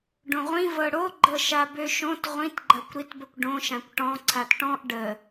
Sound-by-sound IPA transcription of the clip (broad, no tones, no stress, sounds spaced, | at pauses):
ɖ õ ʁʷ ĩ v ɤ ɽ o ɡ͡ǃ ɤ ʃ a b ø ʃ õ t ʁʷ ĩ t ɡ͡ǃ ɐ kʷ ɾ i t b ə kʷ ɖ õ ʃ ã kʷ ʈ ɔ̃ ǀʰ a t ʈ ɔ̃ ʔ ɖ ə